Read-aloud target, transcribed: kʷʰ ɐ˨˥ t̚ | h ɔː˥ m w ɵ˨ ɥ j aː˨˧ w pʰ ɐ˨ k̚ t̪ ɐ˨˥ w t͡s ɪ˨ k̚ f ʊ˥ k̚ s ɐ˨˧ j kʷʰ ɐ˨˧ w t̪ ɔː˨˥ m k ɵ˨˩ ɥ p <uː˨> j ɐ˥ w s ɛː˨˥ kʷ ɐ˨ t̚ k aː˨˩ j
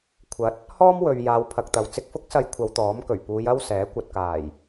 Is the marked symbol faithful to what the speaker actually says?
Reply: no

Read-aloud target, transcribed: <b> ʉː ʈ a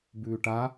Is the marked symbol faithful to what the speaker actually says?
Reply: yes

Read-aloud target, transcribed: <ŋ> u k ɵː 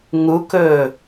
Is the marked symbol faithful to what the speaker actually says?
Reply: yes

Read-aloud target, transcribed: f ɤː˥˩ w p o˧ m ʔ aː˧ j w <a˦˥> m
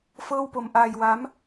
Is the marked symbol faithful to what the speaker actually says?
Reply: yes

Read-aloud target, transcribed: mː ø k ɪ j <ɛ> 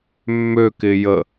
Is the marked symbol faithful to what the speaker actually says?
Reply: no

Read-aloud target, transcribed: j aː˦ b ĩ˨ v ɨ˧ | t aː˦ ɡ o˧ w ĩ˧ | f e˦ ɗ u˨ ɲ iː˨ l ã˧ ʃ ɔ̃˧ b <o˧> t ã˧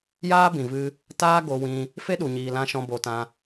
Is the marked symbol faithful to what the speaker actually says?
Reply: yes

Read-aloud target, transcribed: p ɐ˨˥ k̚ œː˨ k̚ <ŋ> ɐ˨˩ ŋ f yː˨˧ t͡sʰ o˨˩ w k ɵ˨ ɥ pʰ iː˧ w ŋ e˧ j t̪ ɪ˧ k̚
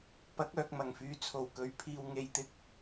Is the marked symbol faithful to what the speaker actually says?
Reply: no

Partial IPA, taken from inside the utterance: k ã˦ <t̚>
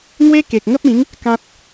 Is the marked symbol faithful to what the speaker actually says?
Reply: yes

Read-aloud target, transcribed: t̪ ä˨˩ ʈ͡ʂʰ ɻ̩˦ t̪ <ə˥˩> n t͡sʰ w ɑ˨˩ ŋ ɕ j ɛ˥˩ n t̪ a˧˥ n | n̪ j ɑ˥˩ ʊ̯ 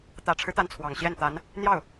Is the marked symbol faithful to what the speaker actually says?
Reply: no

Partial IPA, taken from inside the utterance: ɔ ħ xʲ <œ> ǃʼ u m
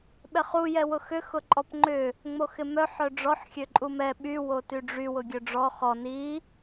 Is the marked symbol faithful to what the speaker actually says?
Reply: no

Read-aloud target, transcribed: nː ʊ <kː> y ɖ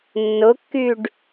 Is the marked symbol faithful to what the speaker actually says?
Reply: yes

